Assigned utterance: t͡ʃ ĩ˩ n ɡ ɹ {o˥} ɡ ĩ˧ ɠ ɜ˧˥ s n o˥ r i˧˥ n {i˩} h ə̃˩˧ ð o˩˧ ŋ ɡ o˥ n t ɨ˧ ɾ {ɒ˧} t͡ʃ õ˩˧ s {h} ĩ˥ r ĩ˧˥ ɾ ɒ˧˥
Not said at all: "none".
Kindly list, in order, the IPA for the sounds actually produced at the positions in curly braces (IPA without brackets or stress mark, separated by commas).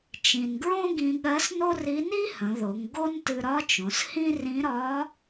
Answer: õ˥, i˥, ɒ˧˥, h